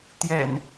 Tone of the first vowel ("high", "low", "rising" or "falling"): low